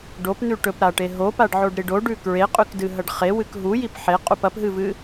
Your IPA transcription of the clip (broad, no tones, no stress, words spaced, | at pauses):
ɖopn̪ʉ ʈɵpɾaʈe ɦopaɖʕoɖɾiɖ oɖʉ kɹeqʼʉkdɨɦɐɖ χewɨk ɦujip ħeqʼup ɐpɦɨvɨ